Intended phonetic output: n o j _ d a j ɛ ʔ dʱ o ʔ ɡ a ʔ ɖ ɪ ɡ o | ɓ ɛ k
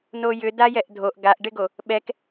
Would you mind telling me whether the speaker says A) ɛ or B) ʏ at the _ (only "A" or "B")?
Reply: B